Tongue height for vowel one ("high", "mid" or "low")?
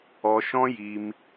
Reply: mid